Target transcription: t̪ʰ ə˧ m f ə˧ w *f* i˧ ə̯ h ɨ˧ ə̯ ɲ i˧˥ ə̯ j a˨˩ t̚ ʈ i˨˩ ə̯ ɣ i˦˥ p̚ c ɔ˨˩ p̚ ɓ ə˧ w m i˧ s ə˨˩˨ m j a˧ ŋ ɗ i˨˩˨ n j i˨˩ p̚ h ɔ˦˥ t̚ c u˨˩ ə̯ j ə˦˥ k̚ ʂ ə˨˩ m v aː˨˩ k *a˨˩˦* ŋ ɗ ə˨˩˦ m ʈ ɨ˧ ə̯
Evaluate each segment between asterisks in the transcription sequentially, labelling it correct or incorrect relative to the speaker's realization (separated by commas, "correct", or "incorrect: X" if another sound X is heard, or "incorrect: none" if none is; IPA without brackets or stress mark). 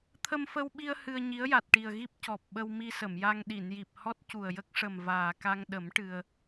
incorrect: ɓ, incorrect: a˧